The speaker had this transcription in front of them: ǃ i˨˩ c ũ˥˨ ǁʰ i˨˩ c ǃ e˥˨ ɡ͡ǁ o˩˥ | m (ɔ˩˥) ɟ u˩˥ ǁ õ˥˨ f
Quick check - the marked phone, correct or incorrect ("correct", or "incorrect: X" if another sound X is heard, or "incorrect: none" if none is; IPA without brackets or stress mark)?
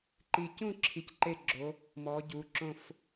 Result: correct